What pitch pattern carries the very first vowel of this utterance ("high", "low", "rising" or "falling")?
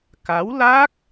rising